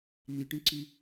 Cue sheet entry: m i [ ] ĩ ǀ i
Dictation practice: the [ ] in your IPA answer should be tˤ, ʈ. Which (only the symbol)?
ʈ